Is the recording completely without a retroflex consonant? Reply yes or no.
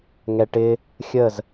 no